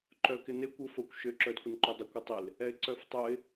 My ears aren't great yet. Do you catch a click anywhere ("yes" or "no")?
yes